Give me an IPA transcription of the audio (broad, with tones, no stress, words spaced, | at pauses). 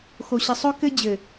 xo˨ɕɪ˨ sˤɵ˦ kɘ˦d͡ʑɘ˨